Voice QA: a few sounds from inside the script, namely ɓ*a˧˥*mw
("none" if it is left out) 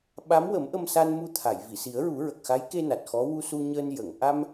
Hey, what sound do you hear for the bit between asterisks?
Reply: a˧˥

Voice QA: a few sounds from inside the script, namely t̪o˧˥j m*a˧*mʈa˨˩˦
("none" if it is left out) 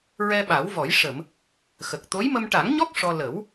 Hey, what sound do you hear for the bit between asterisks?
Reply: ə˧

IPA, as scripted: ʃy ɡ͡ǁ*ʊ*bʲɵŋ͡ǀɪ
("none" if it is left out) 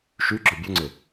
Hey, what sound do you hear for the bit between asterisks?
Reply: ɵ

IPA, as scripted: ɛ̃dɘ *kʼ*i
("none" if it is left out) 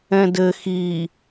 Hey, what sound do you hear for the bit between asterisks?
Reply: x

